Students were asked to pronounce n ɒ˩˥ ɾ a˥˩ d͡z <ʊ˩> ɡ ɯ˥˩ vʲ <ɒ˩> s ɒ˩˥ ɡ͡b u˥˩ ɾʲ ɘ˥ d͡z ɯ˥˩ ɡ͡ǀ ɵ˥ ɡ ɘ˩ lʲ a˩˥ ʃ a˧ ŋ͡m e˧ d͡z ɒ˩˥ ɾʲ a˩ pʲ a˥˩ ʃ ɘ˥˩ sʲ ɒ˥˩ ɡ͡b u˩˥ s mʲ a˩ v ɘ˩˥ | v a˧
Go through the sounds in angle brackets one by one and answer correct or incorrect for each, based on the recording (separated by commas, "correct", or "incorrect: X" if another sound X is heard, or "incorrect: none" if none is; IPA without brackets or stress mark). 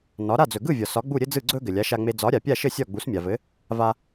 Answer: incorrect: ɵ˩, correct